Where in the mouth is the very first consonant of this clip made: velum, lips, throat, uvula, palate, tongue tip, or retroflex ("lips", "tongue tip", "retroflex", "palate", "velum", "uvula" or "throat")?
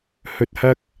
throat